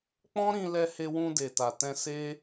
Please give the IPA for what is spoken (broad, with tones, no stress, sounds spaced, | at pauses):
k͡p ɔ̃˦ ɾ ĩ˧ l ɛ˧ h e˧ w ũ˧ d e˨ t a˨ t ɛ̃˧ s e˦